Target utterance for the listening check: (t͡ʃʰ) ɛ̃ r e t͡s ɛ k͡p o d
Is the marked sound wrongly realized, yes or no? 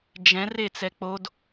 yes